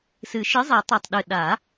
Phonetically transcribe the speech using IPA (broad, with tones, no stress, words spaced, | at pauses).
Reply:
sɨ˨˩˦ ʃɨ˨˥zˤi˨˩˦tˤʉ˨˩tˤɗɨ˨˩ ɗa˨˩˦